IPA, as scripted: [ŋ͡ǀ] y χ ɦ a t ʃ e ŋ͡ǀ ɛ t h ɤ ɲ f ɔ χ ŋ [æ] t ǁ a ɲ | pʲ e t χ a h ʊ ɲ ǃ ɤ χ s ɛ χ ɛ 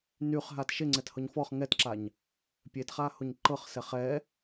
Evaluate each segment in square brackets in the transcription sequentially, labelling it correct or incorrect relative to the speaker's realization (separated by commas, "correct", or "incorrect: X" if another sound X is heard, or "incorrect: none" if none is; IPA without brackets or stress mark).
incorrect: n, incorrect: ɛ